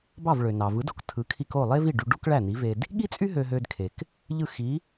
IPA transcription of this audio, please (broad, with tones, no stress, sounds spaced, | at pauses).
b ɑ˥˩ v ɭ ø˩ n ɑ˩ v ɯ˩˥ d o˩ k tʰ ɯ˩˥ kʰ i˧ k o˥˩ lˠ e˥ v i˥˩ ɖ y˧ ɖ u˥ k ɭ æ˥˩ n i˩˥ v e˧ d | ɠ i˥ t͡sʼ y˥ ɦ ø˧ ɦ ø˧ d kʰ e˩ k | ʎ ɯ˥˩ x i˩˥